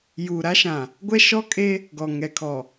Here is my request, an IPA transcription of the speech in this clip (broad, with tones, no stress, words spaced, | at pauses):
juː˨ɾa˦ʃã˨ | ɡʷɛ˦ʃɔ˦kʼe˦ | ɡɔ˨ŋɛ˨kʰɔ˨